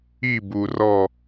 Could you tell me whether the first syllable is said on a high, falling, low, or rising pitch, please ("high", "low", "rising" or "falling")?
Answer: falling